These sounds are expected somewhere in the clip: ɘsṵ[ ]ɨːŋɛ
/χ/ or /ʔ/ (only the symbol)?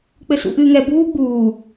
ʔ